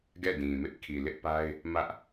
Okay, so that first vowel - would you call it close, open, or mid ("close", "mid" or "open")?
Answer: mid